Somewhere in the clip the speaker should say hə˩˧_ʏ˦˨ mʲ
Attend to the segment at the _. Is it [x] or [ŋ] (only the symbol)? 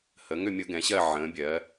ŋ